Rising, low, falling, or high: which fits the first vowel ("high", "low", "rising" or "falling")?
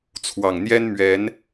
low